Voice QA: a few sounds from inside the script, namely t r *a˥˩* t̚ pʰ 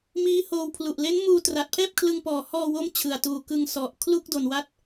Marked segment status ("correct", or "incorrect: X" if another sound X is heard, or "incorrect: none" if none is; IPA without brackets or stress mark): incorrect: a˨˩